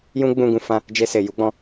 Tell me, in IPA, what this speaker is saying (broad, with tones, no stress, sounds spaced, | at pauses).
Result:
j ũ˦ ɡ͡b ũ˧ ɡ ũ˧ f ã˧ | d͡ʒ e˧ s e˨ j u˨˦ ɡ͡b ɔ̃˧